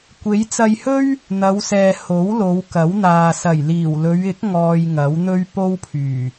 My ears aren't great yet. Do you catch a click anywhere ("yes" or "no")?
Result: no